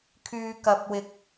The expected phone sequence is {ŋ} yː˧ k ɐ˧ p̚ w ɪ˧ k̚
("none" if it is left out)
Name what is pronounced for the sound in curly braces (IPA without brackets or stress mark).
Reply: kʰ